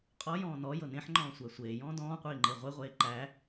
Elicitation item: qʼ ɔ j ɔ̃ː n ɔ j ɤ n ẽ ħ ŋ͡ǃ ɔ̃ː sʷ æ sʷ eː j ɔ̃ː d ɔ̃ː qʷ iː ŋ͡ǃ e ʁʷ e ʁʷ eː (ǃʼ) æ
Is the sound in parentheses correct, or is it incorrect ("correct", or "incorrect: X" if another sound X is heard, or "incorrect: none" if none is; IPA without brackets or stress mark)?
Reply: incorrect: ǃ